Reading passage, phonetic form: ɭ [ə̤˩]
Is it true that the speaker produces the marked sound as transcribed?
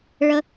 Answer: no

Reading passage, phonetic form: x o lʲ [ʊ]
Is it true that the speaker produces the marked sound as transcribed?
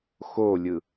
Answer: no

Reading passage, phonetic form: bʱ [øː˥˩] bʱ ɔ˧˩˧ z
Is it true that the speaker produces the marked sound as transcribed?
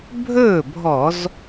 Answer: no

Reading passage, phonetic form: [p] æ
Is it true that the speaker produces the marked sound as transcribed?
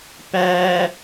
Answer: yes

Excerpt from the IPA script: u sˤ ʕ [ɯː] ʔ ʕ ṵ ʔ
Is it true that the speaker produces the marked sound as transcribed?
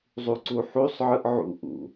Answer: no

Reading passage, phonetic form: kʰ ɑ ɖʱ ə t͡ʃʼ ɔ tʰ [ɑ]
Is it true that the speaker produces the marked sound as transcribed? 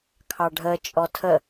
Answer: no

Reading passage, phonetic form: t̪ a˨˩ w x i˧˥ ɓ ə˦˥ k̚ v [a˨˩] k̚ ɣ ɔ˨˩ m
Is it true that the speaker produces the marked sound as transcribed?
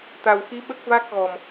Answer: no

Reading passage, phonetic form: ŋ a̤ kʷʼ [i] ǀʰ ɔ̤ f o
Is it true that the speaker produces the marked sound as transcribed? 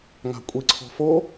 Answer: yes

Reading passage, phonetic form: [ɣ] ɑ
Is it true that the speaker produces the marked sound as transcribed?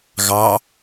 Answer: yes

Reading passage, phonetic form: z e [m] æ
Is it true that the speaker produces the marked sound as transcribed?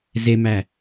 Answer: yes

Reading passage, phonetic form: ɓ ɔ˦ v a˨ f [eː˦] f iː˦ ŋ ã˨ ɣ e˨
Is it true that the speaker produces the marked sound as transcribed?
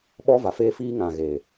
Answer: yes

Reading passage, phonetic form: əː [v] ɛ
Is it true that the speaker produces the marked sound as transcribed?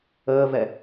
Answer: yes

